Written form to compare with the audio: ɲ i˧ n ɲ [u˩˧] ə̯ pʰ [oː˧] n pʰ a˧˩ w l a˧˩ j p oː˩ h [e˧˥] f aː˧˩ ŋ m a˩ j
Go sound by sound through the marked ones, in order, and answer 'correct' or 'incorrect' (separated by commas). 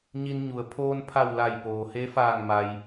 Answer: correct, correct, correct